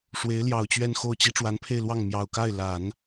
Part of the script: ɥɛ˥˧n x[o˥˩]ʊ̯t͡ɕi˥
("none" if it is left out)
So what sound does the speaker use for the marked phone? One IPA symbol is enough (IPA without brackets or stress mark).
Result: o˥˩